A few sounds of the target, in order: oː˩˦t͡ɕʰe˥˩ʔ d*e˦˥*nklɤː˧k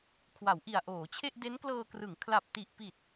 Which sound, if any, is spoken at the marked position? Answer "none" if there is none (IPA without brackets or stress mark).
e˦˥